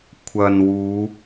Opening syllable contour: low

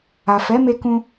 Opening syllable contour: low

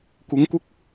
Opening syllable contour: rising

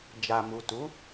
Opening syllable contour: low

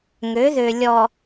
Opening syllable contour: rising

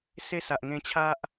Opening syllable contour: high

